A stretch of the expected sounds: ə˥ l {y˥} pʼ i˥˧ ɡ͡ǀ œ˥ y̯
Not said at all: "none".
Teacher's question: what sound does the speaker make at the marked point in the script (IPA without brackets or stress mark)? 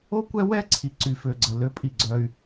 ø˥